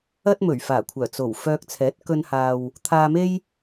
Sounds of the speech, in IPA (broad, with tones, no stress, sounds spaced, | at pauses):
ɐ˥ t̚ m ɵ˨˩ ɥ f aː˨˩ kʷʰ œː˨˩ t͡s o˨˩ w f œː˧ k̚ t͡sʰ ɛː˨˥ t̚ k ɵ˧ n h aː˨ w | t̪ʰ aː˧ m e˥ j